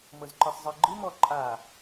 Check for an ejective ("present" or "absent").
present